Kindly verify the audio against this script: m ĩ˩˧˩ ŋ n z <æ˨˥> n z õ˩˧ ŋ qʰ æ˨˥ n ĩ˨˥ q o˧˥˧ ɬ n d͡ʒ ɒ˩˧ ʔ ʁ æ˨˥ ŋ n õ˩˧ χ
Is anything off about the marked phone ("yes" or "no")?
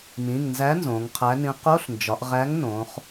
no